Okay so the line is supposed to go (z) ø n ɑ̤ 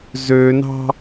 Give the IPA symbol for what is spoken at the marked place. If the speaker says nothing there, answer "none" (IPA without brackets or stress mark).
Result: z